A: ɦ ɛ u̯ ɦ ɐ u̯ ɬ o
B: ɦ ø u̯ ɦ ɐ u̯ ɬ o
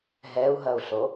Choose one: A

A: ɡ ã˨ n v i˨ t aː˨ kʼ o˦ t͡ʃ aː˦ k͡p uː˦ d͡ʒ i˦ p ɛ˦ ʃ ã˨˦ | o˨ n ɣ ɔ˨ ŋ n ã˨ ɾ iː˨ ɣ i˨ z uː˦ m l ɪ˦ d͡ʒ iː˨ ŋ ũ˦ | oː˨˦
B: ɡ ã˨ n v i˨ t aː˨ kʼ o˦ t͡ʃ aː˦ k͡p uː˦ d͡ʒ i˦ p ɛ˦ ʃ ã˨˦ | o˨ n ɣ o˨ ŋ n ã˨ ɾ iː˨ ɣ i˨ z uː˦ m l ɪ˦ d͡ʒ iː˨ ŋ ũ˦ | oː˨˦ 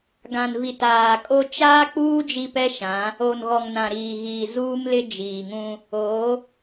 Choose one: A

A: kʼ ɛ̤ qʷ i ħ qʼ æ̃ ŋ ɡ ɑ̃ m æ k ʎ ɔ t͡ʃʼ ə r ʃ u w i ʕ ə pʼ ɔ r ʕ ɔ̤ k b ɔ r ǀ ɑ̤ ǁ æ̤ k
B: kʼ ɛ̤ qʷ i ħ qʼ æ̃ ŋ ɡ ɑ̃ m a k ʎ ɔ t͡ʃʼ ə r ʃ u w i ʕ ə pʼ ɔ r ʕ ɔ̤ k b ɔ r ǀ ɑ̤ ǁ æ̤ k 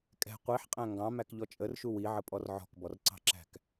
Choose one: A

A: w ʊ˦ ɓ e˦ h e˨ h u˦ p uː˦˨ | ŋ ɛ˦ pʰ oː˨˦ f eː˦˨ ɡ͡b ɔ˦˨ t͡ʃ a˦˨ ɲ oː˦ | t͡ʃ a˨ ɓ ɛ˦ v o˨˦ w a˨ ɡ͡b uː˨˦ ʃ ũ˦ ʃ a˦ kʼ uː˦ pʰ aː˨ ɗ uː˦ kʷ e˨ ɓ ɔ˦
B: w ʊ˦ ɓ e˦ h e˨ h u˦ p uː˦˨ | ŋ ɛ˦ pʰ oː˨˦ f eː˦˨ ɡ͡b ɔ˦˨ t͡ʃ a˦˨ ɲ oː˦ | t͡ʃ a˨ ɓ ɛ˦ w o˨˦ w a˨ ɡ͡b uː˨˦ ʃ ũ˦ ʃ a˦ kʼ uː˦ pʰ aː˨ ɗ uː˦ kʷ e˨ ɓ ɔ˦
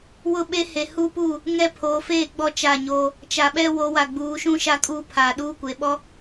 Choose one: B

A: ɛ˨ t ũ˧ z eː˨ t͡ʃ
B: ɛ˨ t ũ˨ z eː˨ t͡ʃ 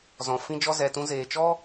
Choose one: A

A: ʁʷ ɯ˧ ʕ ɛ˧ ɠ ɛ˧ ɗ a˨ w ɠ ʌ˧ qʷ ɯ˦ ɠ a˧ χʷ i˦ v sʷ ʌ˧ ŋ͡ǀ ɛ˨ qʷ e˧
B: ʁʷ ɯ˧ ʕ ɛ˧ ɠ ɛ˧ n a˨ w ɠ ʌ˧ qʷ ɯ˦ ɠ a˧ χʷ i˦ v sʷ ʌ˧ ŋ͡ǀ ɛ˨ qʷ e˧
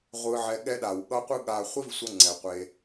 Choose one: A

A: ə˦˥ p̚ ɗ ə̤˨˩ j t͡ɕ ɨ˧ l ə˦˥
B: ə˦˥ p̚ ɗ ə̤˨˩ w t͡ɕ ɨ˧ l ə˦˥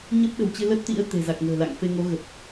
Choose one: B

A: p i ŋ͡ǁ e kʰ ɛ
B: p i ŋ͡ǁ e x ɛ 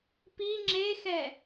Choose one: B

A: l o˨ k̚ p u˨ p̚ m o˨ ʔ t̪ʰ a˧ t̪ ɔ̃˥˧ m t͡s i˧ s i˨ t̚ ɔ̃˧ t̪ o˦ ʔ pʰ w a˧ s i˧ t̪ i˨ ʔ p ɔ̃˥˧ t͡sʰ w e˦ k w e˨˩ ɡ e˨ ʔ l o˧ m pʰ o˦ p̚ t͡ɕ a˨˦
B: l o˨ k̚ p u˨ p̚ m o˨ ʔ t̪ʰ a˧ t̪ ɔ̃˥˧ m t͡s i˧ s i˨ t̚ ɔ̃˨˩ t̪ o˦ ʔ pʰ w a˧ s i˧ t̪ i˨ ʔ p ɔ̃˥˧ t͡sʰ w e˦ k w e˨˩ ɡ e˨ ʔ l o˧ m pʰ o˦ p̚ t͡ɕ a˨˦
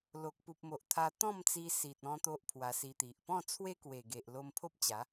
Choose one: A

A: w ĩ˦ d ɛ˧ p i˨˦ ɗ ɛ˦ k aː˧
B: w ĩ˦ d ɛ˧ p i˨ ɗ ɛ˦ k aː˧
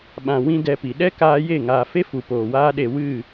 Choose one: B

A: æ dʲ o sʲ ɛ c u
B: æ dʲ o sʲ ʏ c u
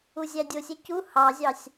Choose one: A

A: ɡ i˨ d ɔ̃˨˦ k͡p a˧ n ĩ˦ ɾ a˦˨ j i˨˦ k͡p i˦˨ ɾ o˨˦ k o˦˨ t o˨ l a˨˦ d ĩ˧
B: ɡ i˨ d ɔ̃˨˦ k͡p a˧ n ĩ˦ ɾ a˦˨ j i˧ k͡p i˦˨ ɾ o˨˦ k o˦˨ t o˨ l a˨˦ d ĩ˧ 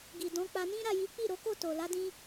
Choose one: A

